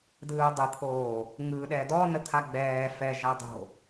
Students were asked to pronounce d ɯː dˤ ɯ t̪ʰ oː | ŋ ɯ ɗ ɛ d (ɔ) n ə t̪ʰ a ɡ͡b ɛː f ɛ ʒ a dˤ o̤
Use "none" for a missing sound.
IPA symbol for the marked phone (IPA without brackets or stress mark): ɔ